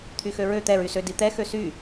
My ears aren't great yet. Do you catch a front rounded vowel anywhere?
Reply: yes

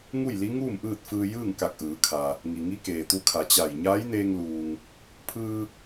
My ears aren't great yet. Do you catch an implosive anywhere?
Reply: no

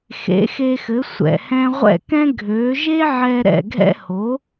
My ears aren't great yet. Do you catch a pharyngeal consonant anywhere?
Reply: yes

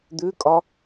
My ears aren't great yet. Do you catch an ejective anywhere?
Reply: yes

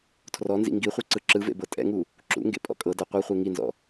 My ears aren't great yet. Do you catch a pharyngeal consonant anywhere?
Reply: no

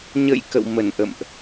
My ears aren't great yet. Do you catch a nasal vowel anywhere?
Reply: no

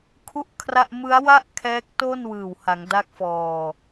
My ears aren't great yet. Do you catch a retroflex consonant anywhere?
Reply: no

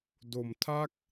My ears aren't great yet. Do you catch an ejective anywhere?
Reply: no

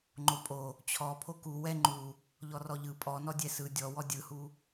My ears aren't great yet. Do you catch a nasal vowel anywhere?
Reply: no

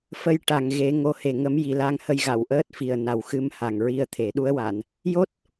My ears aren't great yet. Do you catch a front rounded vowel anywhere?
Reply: no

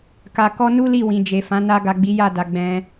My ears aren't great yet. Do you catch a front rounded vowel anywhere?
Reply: no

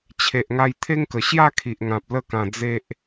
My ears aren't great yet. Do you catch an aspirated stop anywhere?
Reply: yes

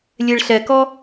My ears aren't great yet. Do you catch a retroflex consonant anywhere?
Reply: yes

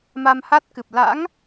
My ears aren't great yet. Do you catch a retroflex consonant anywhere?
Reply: no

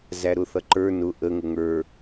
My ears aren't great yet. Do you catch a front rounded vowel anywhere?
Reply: no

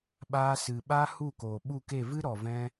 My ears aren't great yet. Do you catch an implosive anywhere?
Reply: yes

